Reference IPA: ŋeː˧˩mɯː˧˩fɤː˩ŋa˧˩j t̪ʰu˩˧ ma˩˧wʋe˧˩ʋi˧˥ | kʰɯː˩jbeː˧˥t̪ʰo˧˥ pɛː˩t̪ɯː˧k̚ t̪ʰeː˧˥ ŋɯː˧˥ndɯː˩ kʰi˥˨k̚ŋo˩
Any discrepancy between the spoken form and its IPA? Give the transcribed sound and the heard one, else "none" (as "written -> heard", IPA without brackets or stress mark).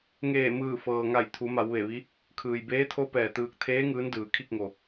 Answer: none